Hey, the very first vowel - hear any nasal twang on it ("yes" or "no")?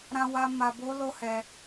yes